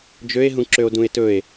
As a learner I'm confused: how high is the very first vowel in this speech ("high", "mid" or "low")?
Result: mid